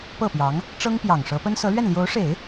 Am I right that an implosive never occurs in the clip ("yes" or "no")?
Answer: yes